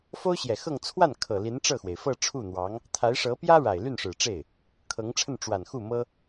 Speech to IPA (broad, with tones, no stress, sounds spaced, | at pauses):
f o˥ ʊ̯ ɕ j ɛ˨˩ x ɤ˥˧ ŋ t͡sʰ w a˥˩ n kʰ ɤ˨˩ l i˧˥ n ʈ͡ʂ ɤ˥˩ x w e˩ ɪ̯ f ɤ˥˧ ʈ͡ʂʰ u˥˩ n̪ w ɑ˧˥ ŋ | t̪ʰ a˧˥ ɪ̯ ʂ ɤ˧˥ p j ä˥ ɻ a˨˩ ɪ̯ l y˥˩ n ʂ ɻ̩˨˩ ʈ͡ʂ e˥˩ ɪ̯ | kʰ ɤ˧˥ ŋ ʈ͡ʂʰ ə˥˩ n ʈ͡ʂ w a˨˩ n x u˥˩ m ɤ˥